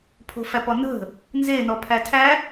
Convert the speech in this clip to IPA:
pʰo̤fæpɔnə̤ | nze nɔpʰætʰæ

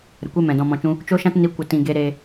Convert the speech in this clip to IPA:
ɾə˨kʷe˦ mɛ̃˨dɔ̃˧mɔ̃˧t͡ʃũ˦ | t͡ʃo˦ʃã˦t ni˧kʷə˨ tĩ˨ ɡe˧ɾe˧

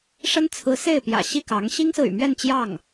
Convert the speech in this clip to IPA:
ʂə˥n t͡sʰɹ̩˧˥se˥˩ɪ̯pjä̰˨˩ ɕi˥˩kɑ˧˥ŋ ɕi˥ŋsɹ̩˨y̰˨˩mɥɛ˥˧n t͡ɕjɑ˥˩ŋ

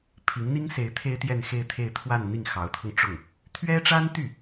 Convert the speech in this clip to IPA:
pʰi˧˥ŋn̪i˥ŋse˧˥ɪ̯ t̪ʰe˥ɪ̯t̪jɛ˥˧nxe˥˧ɪ̯t̪ʰe˥˧ɪ̯ t̪ʰwa˥˧n n̪i˥˩ŋxɑ˧˥ʊ̯t̪ʰɤ˧ŋʈ͡ʂʊ˥˩ŋ | t̪ʰɥɛ˥ʈ͡ʂa˥nt̪y˥˩

